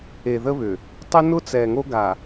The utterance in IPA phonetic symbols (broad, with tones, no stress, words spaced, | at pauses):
e˨ðə˦βʏ˨ | tˤʏ˦ nʊ˦t͡sɛ˨ŋo˦ ɡa˨